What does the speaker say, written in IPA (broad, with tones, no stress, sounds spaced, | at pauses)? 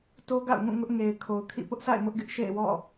t o˦ ɡ a̰˦˨ ʊ̯ ŋ ũ˦˨ ŋ ʊ˦ ʔ ŋ e˨ ɪ̯ kʰ o˨ ʊ̯ kʰ ḭ˦˨ p ʊ˦ ʔ s a̰˦˨ ɪ̯ m ʊ˦ ʔ ɡ ɪ˦ ʔ ʃ ḛ˦˨ ɪ̯ w ɔ̰˦˨